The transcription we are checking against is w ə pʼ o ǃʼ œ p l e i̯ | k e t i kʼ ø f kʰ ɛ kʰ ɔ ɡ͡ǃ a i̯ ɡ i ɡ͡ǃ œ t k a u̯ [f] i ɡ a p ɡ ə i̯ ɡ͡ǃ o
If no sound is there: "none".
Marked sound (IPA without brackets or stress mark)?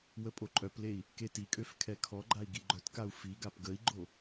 f